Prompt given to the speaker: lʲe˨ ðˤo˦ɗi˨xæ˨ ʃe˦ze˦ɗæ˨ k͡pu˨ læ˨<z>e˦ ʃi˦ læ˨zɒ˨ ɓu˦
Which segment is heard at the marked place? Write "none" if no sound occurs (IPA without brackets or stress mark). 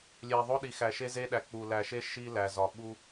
ʃ